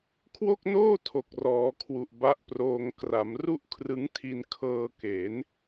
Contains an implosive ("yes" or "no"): no